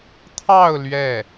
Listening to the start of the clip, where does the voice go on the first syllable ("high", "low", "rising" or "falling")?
falling